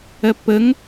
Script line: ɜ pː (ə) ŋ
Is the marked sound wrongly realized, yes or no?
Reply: no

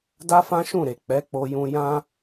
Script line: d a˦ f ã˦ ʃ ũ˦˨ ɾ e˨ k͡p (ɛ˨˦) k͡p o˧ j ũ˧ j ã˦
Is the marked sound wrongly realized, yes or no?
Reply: no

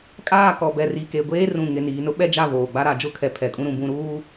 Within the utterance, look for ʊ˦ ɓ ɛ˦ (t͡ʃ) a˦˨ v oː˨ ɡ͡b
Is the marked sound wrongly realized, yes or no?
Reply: yes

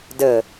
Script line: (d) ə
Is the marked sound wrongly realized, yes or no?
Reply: no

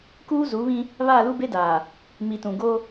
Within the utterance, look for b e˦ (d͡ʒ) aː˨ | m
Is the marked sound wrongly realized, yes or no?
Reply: yes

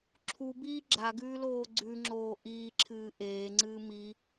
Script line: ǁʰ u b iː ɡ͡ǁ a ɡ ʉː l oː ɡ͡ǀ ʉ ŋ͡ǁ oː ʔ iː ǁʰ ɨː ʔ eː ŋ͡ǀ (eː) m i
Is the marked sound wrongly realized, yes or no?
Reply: yes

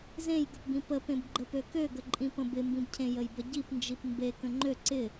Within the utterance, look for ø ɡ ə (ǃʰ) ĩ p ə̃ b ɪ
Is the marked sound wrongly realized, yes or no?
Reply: yes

